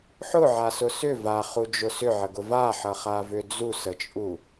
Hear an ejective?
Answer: yes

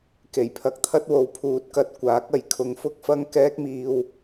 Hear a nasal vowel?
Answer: no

